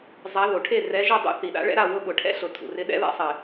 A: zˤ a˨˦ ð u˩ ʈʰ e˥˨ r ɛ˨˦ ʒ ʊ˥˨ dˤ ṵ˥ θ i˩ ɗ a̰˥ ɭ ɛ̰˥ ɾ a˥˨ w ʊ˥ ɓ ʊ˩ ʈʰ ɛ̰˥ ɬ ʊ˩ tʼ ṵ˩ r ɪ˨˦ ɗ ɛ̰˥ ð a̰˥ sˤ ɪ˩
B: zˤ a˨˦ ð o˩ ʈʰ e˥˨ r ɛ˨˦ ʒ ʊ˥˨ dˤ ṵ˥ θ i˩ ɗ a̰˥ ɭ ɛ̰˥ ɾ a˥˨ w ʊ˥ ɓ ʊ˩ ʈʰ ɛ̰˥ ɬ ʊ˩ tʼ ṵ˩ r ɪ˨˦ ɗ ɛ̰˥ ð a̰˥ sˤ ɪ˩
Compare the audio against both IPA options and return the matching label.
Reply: B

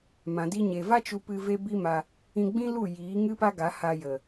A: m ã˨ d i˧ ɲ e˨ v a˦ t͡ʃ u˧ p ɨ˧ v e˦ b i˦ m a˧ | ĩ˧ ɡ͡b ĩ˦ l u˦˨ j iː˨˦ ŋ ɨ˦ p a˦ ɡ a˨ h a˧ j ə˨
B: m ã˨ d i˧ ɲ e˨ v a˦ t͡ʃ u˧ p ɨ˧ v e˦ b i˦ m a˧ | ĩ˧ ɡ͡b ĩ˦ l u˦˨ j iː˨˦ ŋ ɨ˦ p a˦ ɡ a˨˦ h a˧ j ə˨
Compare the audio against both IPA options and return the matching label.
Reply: B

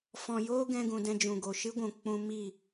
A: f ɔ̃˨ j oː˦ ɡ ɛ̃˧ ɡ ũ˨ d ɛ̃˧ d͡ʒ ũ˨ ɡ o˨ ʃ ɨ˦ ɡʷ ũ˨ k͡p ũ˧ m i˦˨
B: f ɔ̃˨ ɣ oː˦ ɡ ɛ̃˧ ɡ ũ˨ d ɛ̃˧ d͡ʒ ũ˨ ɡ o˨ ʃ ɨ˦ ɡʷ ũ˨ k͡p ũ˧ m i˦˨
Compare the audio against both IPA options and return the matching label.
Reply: A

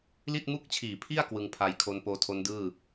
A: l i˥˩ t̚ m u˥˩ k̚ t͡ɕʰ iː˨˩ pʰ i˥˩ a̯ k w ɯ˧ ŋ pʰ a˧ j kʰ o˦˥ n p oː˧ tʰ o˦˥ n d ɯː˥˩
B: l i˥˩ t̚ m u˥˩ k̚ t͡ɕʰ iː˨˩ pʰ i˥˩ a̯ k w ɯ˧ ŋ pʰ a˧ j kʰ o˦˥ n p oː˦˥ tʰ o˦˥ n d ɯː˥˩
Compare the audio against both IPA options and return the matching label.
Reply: A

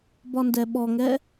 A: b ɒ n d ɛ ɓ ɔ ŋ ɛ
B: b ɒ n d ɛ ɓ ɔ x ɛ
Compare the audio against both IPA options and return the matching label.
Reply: A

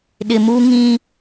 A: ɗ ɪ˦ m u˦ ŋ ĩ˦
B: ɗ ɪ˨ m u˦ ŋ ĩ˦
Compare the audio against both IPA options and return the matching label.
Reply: B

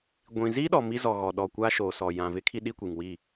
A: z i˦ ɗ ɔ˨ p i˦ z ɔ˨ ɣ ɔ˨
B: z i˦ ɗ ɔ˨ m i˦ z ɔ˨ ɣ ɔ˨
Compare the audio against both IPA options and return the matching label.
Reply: B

